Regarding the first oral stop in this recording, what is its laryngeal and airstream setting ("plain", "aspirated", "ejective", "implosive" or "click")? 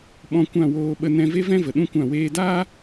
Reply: implosive